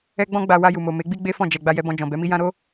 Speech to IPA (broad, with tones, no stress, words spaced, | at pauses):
ɛ˦ɡ͡bɔ̃˦ ɡ͡ba˧ wa˧ju˨mo˨ me˨˦ɡ͡bi˦ ɡ͡be˦fɔ̃˦˨ d͡ʒɛ˨ ɡ͡ba˧jɛ˧bɔ̃˧ d͡ʒɔ̃˨bɛ˨˦mi˦ jã˦ɾo˦